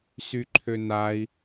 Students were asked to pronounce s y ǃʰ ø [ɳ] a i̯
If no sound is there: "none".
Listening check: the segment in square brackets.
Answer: n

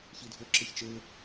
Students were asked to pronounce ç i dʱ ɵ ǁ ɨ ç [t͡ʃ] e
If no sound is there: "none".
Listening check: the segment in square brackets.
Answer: t͡ʃ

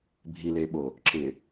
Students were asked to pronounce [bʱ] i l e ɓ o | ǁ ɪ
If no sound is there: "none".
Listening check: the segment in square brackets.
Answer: bʱ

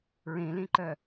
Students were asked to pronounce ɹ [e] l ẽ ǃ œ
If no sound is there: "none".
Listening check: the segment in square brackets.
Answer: ẽ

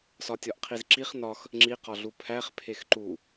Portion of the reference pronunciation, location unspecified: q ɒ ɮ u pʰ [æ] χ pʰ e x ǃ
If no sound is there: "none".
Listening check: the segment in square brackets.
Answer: æ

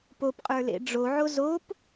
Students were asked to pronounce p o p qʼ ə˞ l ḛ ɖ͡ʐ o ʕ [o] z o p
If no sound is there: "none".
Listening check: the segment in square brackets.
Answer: o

